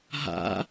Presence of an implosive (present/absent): absent